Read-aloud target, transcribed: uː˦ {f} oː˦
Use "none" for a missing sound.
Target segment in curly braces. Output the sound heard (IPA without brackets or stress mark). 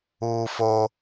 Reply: f